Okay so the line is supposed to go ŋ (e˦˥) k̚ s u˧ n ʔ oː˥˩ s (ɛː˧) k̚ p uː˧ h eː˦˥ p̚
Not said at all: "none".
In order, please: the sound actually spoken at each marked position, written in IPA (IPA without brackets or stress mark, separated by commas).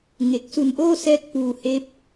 e˨˩, ɛː˦˥